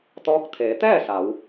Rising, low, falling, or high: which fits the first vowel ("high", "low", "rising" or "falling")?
rising